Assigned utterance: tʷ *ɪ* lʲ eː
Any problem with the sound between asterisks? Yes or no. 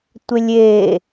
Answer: no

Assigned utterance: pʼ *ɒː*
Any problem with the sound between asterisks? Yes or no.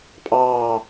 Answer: yes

